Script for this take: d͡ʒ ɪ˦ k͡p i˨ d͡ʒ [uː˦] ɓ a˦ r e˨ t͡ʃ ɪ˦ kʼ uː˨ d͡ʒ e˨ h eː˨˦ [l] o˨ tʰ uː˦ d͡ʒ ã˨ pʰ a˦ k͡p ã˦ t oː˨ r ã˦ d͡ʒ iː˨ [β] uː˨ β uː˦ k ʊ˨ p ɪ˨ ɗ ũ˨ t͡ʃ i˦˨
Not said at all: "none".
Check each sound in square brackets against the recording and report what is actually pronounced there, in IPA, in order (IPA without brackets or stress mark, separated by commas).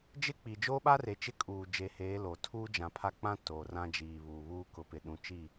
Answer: oː˦, l, β